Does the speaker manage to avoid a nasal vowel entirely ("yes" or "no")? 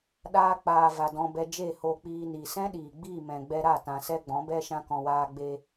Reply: no